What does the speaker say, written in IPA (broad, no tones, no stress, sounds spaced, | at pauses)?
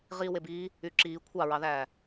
ʁ iː w e b iː | y ǁ iː kʷʰ ɑ ɹ ɑ ð æː